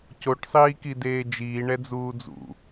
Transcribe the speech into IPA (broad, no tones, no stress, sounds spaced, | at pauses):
c o ʈ sˤ iː k i d eː d͡ʒ iː ɳ ɛ d͡z uː d͡z ṵ